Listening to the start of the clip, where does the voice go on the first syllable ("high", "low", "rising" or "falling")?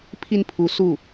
falling